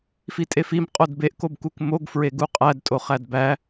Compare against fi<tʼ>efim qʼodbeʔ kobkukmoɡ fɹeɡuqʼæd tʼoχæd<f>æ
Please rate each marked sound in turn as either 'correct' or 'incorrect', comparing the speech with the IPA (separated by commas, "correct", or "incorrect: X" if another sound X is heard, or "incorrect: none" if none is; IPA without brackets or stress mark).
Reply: correct, incorrect: b